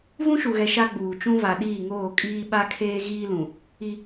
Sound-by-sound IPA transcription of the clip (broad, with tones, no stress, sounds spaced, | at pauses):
v ũ˦ ʃ u˨ ɣ ɛ˨ ʃ a˦ ɡ͡b uː˨ t͡ʃ ũ˦ v a˨ ɗ iː˦˨ ŋ oː˦˨ kʼ iː˦ ɓ a˦ kʰ eː˦ ɣ iː˦ l ũ˨ | i˦